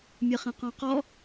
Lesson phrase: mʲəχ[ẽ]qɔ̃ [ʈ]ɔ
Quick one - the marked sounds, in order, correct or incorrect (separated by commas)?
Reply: correct, incorrect